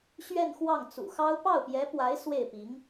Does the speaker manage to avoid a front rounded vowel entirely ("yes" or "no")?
yes